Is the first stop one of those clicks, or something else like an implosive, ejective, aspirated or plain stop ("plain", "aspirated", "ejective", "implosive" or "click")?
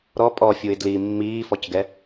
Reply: ejective